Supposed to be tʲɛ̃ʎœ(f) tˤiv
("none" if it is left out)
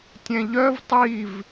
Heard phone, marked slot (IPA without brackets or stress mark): v